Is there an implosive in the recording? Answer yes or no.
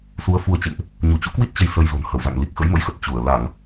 no